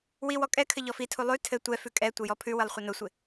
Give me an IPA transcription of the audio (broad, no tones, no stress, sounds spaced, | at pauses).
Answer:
w i w ɔ kʼ ɛ kʰ ɘ ʎ ɔ f i tʰ u lˠ ʉ tʰ ɘ tʷ ɛ f ʉ kʼ ɛ tʷ ə j ɔ pʰ ʉ w ɘ lˠ χʷ ə n ʊ sʷ ɪ